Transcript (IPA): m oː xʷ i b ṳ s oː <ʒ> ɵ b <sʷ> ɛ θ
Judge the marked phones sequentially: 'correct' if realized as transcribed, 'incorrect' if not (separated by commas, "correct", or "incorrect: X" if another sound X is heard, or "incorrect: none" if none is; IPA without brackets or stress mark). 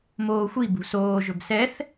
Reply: correct, incorrect: s